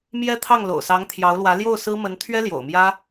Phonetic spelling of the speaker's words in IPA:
m j ɛ˥ t̪ʰ ɑ˥˩ ŋ l o̰˨˩ ʊ̯ s ɑ˧˥ ŋ t̪ʰ j ɑ˧˥ ʊ̯ l w ä˧˥ l j o˥˩ ʊ̯ s ɹ̩˥ m ə˧˥ n t̪ʰ ɥ ɛ˥ l j o̰˨˩ ʊ̯ m j ä˥

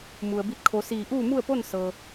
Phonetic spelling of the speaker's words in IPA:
m u˩ ə̯ b i˧ t̚ kʰ o˩˧ s iː˧˩ ʔ uː˥˨ m u˥˨ ə̯ p o˥˨ n s ɤː˩

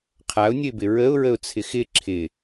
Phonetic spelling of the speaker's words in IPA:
qʰ a ʊ̯ nʲ ə ɪ̯ b ɪ ɹ ə ʊ̯ ɹ ə ʊ̯ t͡sʰ ɪ x ɪ ǁʰ ɪ

